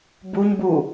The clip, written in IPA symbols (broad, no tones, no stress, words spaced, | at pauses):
buɲbu